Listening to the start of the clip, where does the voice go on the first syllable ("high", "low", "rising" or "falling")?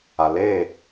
low